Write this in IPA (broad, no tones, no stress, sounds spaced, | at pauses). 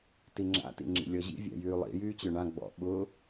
t i ŋ͡ǁ a̰ t ḭ ŋ͡ǁ ḭ lʲ ɔ ʑ ḭ vʲ a̰ j yː lˠ ḭ j yː t͡ɕ ø ɳ ã ɡ͡b ɔ̰ ɓ ʊ